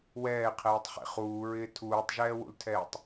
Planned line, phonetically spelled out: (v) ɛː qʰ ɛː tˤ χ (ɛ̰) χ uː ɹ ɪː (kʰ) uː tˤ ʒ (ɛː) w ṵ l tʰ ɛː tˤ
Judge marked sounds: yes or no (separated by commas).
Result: no, no, no, yes